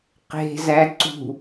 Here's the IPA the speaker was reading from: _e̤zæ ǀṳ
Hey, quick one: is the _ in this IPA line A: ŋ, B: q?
B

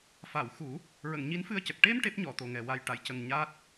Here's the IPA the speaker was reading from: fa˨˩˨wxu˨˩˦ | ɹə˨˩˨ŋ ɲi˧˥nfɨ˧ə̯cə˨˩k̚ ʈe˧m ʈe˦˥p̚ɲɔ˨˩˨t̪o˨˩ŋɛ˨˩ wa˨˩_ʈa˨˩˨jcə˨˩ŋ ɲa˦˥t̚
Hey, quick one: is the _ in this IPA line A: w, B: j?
B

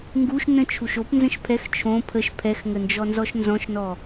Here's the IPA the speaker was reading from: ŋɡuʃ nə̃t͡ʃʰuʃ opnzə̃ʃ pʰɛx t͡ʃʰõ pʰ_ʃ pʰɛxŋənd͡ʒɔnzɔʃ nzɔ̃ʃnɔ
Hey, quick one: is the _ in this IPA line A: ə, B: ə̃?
A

